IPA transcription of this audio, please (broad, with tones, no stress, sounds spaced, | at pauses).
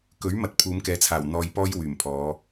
k ɵ˨˥ ɥ m ɐ˨ t̚ pʰ uː˨˧ m k ɛː˨˥ t͡sʰ aː˨˩ w n̪ ɔː˧ j p ɔː˥ j w yː˨˩ m pʰ ɔː˨˧